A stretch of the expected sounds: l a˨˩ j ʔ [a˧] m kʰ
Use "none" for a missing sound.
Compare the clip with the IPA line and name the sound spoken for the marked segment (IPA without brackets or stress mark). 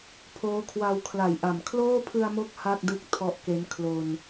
a˨˩